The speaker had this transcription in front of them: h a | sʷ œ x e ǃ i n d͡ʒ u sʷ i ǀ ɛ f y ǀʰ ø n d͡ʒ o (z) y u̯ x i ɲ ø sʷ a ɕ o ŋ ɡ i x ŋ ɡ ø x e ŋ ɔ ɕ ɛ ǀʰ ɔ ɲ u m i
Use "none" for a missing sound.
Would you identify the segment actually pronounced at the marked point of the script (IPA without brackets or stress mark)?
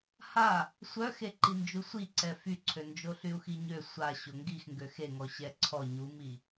ɬ